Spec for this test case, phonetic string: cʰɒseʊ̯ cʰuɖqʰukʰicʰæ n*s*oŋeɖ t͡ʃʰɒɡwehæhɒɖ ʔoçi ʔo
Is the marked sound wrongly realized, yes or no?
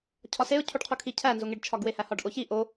yes